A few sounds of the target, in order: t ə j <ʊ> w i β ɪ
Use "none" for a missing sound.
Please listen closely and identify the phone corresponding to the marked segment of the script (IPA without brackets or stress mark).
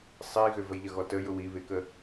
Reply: ʊ